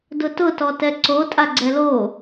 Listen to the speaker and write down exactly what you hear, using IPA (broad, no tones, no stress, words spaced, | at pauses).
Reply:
dʊtʊ tɔtɛǀo tʼaɡ͡ǀɛlo